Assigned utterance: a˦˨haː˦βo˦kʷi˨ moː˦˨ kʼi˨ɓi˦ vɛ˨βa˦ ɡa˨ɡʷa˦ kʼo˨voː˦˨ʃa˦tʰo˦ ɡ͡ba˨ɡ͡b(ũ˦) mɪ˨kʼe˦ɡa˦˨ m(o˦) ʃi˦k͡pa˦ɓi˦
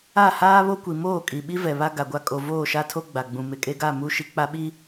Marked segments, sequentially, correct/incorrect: incorrect: ũ˨, incorrect: u˦

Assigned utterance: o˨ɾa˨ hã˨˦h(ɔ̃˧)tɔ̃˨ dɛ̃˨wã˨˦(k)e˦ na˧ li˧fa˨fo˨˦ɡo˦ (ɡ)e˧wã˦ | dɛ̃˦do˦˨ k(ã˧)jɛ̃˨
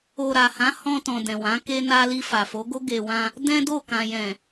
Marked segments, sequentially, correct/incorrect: correct, correct, correct, incorrect: ã˨

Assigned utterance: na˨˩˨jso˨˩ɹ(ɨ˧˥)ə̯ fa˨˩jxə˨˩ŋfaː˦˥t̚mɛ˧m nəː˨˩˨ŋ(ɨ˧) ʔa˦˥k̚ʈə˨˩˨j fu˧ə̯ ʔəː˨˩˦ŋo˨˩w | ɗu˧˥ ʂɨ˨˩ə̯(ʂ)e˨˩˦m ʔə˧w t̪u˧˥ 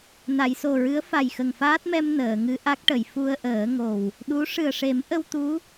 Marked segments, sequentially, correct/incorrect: correct, correct, correct

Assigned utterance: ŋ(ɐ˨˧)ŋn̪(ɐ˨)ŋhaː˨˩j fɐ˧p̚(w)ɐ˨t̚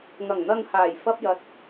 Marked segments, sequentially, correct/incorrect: incorrect: ɐ˨˩, correct, incorrect: j

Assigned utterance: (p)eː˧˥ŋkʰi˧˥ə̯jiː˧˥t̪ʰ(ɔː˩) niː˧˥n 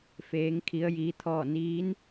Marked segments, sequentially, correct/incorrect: incorrect: f, incorrect: ɔː˥˨

